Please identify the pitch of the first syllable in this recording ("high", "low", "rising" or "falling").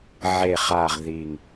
low